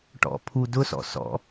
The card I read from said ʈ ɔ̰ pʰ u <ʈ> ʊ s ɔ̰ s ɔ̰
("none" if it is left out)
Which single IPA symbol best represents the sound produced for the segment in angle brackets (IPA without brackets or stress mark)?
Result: d